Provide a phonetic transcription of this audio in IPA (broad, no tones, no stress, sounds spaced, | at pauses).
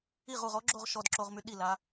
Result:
i ʁ u ʁ ɔ ɡ͡ǁ o ʁ ʃ ɔ d ǁ o ʁ m y ɗ i l a